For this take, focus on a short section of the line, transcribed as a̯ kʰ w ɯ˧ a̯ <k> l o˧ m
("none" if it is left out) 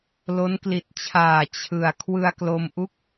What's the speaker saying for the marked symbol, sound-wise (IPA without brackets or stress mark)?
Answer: k